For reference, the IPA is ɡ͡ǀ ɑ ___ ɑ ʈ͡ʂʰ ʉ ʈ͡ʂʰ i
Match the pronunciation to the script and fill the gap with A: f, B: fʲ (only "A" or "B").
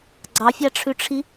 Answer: B